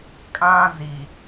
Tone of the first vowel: high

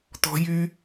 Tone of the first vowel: high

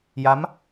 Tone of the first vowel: rising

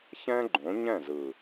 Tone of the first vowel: high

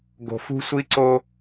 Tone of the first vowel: low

